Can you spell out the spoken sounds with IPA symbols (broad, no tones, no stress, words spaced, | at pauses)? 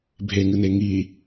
bʱeŋɨne ŋi